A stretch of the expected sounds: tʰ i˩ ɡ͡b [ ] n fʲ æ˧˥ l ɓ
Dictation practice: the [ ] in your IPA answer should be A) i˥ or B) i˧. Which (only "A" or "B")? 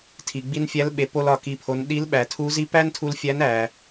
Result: B